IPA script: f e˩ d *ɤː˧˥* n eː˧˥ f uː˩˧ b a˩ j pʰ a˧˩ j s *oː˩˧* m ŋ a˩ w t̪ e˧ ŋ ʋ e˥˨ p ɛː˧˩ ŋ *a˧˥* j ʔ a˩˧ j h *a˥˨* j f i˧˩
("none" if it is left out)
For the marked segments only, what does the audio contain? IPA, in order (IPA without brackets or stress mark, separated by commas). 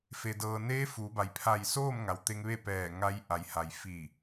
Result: ɤː˩, oː˥˨, a˧˥, a˩